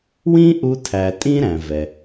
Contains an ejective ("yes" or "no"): yes